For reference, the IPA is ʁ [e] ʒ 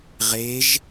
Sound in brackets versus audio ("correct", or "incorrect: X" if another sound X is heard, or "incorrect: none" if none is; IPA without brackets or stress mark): correct